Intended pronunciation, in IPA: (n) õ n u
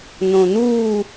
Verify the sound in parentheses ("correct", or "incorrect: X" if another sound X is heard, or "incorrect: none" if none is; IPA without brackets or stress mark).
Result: correct